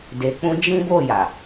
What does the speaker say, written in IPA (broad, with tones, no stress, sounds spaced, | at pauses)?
d e˧ k͡p ũ˦ d͡ʒ ĩ˦ b o˦˨ j a˨